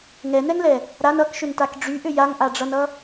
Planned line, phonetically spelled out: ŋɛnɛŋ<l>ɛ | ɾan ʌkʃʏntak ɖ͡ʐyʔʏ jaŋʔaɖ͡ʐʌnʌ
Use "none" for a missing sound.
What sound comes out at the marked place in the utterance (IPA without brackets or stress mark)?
l